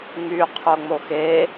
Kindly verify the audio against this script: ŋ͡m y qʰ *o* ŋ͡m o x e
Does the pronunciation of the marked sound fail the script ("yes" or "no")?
no